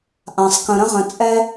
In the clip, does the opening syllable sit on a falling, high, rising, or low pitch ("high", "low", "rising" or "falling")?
low